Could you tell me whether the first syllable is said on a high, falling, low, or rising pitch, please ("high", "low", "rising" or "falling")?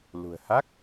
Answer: low